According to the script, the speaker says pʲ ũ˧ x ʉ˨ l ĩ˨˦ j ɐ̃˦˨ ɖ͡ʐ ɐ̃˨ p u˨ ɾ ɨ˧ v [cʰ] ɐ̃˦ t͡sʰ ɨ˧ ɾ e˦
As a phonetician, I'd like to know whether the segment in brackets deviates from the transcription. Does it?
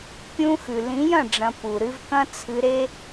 yes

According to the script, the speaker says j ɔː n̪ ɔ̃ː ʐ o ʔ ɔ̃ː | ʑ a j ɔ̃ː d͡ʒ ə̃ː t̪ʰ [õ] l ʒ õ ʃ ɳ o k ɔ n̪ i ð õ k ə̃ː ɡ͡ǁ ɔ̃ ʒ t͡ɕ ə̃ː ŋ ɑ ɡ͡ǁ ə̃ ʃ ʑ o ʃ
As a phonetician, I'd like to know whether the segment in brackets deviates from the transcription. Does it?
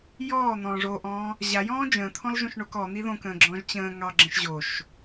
yes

